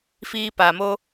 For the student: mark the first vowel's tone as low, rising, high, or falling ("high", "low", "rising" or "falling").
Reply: high